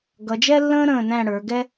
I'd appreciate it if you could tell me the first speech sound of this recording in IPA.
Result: ɡ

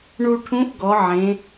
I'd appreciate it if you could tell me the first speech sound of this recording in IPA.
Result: ɳ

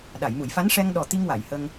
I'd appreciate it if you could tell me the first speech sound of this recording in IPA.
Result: ɗ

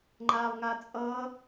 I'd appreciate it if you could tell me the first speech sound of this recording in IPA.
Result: ŋ͡ǃ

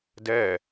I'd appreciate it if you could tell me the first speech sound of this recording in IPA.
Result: d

